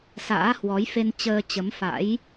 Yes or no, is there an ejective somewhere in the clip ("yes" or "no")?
no